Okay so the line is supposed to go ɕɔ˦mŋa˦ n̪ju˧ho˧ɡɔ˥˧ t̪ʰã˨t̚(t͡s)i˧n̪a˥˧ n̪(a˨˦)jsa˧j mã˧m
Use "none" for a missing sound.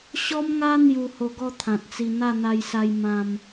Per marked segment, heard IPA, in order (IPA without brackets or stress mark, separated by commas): t͡s, a˧